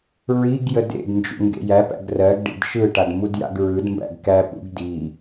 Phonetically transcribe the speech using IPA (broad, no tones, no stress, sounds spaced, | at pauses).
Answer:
ɹ i ɡ j ə d ḛ d n d͡ʒ ṵ ŋ ɡ ḛ j æ p æ̰ ɡ r ɜ ɡ ɖ ḭ d ʃ ɯ ʈ a d m u d j a̰ ɡ ɹ ɯ d m b æ̰ ɡ k æ p ṵ ɡ d i